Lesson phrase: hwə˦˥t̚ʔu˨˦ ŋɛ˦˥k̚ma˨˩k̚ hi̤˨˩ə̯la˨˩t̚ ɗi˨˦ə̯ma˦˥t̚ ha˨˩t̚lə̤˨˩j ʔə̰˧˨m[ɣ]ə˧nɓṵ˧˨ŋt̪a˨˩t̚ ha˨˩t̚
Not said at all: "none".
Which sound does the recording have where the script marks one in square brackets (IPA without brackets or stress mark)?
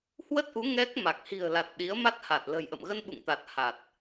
ɣ